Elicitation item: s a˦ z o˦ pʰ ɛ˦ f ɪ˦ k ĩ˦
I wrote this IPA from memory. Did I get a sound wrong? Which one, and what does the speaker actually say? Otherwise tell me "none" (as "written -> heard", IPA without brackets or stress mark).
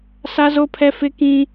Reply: none